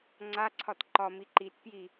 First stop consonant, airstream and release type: click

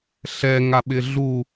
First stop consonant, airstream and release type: implosive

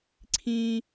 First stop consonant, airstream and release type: click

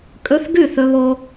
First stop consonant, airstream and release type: ejective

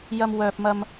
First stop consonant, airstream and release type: plain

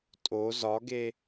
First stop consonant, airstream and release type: ejective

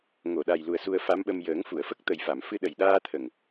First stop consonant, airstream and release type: implosive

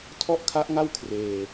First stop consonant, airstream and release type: aspirated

